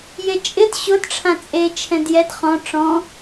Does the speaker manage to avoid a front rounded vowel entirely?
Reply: yes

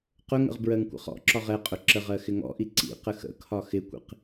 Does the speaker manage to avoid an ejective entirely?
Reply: no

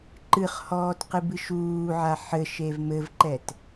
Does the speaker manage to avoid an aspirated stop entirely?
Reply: yes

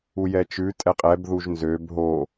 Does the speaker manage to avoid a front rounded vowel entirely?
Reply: no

